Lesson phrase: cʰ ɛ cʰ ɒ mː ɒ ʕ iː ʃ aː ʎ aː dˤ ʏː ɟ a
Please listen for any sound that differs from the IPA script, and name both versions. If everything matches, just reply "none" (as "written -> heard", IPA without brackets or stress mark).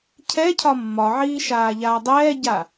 ʏː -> ɛː